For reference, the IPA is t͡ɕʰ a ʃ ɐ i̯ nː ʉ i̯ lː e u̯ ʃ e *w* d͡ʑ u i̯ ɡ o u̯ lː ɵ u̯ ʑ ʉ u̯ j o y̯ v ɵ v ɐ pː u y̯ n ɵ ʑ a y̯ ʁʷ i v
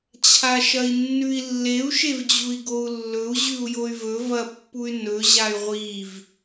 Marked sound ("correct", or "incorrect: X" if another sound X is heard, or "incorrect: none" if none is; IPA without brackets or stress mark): incorrect: v